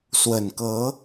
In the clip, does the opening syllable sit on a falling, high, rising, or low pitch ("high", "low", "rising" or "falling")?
low